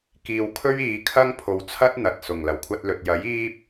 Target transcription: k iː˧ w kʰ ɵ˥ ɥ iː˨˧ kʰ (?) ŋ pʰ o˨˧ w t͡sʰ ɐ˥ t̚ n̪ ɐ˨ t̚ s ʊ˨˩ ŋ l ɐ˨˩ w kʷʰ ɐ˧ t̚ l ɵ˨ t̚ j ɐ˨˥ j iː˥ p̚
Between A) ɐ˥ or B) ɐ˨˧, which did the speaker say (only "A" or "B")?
A